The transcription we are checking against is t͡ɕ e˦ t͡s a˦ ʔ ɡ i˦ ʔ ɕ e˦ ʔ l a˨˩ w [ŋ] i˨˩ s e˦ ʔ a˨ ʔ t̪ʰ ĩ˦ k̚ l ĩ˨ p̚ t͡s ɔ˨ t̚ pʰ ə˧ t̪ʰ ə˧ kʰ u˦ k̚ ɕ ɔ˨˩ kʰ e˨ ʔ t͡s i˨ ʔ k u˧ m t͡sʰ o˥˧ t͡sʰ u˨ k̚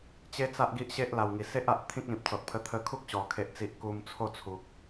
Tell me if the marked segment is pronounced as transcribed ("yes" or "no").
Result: yes